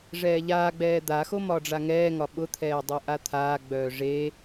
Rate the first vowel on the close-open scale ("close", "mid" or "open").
mid